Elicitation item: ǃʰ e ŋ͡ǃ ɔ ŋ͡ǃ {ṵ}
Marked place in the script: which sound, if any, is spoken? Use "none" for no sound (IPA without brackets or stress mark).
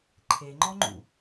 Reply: ṵ